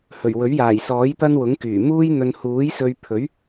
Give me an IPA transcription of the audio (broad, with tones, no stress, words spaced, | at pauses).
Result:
hɵ˨˩ɥwɵ˨˥ɥjaː˨˩jsɔː˨˥j t̪ɐ˥nwʊ˨˥ŋ kyː˨˩ muː˥jn̪ɵ˧n huː˨˥jsɵ˧ɥpʰɵ˨˥ɥ